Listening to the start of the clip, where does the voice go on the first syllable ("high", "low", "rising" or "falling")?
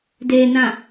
low